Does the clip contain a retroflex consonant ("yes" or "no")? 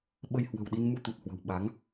no